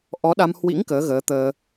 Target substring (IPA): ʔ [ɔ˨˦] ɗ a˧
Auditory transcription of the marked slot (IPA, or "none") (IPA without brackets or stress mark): ɔ˨˦